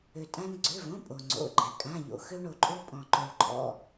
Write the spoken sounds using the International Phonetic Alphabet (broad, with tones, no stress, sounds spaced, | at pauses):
ø˩ tʼ ã˧ n ɡ͡ǀ ø˩˧˩ v õ˩˧˩ pʼ o˩ ŋ͡ǀ o̰˩˧˩ ɡ͡ǃ ɛ˩ kʼ ã˩˧˩ ʎ o̰˩ x ø˧ ɳ o˩ ǃʼ o˧ pʼ ɔ̃˩ ǃ o˩ ɭ ǃʼ ɔ̰˩˧˩